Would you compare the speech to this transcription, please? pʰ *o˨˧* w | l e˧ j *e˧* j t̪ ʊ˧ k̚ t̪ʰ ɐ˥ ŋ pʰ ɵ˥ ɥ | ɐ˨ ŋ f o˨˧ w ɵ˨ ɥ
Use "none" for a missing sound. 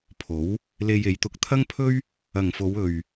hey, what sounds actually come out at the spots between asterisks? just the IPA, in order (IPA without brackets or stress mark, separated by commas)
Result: o˨˥, e˨˧